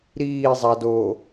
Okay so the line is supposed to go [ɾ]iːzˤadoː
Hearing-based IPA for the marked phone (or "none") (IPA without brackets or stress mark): ɾ